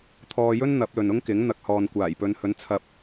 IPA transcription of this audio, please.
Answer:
t̪ʰ ɔː˧ j ɵ˥ n n̪ ɐ˨˥ p̚ l ɵ˨ n ʊ˥ ŋ k ɪ˨˥ ŋ n̪ ɐ˨ k̚ h ɔː˨ n kʷ aː˨˩ j p ɵ˨˧ n h ɵ˨˥ n t͡sʰ ɐ˧ p̚

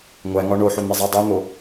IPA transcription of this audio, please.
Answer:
ŋʷ æ ŋ ɒ ɳ o ħ o n̪ e zˤ æ dˤ u n̪ o

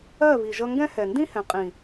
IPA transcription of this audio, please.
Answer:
ɜ˦˨ β i˨ ʒ ʌ˧ ŋ ɡ ɛ̃˦ h ɛ˨ n d ĩ˦ h ɛ̃˨ qʼ ĩ˨

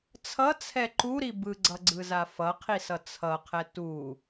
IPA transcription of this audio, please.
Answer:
t͡sʰ ʌ t͡sʰ ɛ ǃ u ɾ i b ɯ ɡ͡ǀ ʌ ɡ͡ǀ ɯ z a f ʌ qʰ i s ʌ t͡sʰ ʌ qʰ ɛ t u

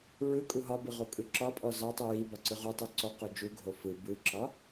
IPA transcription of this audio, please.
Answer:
ɹ ɯ kʼ u ɦ ɒ b ɯ ʁ o kʼ ɯ ǁ ɒ pʼ ɔ z ɒ tˤ u j i b ɒ ǀ ɯ ʁ u tˤ u ǀ ɔ q o d͡ʒ u ɡʱ o f ɯ b ɯ ǁ ɒ

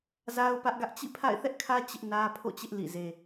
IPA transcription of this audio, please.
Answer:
z a˦ ʊ̯ p ä˦ ʔ ɡ ä˦ ʔ t͡ɕ ḭ˦˨ pʰ a̰˦˨ ɪ̯ θ ɛ˦ ʔ kʰ ä˦ t͡ɕ ɪ˦ ʔ n ä˦ pʰ o̰˦˨ t͡ɕ ɪ˦ ʔ l ḭ˦˨ z e˦

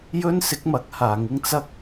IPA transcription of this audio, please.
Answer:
j ɵ˥ n s ɪ˨˥ k̚ m ɐ˨˥ k̚ h aː˨˧ ŋ ɪ˥ ŋ t͡s ɐ˥ k̚

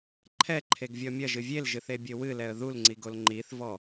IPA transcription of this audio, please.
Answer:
ǃʰ ɛ ǃʰ e ɡ vʲ ɔ mʲ ɐ ʒ ɨ vʲ e l ʒ ɨ θ e bʲ ɘ w ɨ l ɛ ə̯ ð u l ŋ͡ǀ i ɡ o l ŋ͡ǃ i θ v ɔ

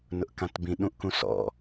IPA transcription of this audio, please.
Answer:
n ʊ ʔ k ã t b ĩ ɗ ũ ʔ k ũ s ɔ̰

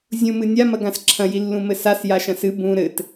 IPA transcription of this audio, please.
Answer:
zʲ ũ m ɨ nʲ a m ɐ ɡ ã s ǁʰ ɐ̃ j i lː ũ m ɘ s a s j a ʃ ɐ̃ s ɨ b ũ ɾ ɘ t

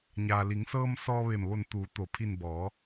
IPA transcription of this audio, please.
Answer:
ɲ aː˩ l i˩˧ ŋ s ɤː˧ m s ɔː˧ ʋ e˧˩ m ʋ o˧˩ n t̪ uː˩˧ t̪ o˩ pʰ i˧˩ n b ɔː˩˧

